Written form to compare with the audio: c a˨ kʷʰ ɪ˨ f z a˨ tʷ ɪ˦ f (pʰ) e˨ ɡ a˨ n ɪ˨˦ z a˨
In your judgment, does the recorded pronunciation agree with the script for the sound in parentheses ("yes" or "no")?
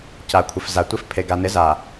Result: yes